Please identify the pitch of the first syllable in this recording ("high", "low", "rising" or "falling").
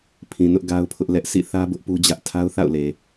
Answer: low